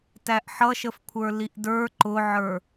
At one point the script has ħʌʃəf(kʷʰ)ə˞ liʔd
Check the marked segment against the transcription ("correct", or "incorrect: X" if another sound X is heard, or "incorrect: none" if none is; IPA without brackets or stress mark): correct